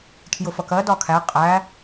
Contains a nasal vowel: no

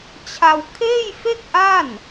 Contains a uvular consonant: no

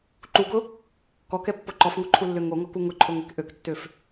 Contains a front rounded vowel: yes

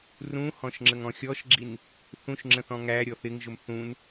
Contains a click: yes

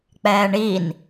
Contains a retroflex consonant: yes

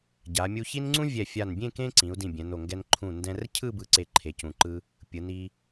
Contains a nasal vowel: yes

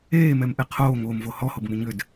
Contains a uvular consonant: yes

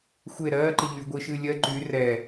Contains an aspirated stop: no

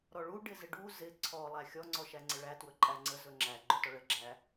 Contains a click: yes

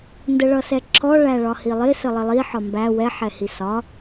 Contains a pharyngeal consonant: yes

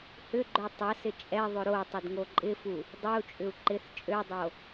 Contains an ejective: yes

